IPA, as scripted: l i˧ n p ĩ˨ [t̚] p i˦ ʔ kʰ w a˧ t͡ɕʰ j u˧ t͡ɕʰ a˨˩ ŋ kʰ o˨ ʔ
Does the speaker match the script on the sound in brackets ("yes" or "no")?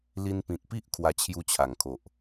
yes